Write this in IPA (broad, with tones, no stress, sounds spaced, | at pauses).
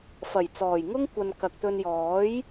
f ɐ˨˩ j t͡s ɔː˨˩ j ŋ ʊ˥ ŋ kʷ ɐ˧ n k ɐ˨ k̚ t̪ ɵ˧ n j ɔː˨˥ j